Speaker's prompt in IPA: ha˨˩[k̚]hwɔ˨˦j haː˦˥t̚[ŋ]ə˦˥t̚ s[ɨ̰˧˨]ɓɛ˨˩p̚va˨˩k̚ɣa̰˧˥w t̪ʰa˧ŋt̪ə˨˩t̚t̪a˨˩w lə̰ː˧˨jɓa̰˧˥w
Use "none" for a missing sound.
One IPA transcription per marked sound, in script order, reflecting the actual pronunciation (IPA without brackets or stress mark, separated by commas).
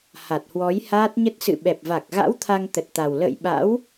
t̚, ɲ, ɨ̰˧˨